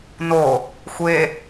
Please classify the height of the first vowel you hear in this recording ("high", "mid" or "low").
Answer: mid